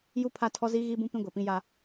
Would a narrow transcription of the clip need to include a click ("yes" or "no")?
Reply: no